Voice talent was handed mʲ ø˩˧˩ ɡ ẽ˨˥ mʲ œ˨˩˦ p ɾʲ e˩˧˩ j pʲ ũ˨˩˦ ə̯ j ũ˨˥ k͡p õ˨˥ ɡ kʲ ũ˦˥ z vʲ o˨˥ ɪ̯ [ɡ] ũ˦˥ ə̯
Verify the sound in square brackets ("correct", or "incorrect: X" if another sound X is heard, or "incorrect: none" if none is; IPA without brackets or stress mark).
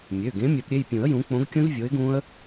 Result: correct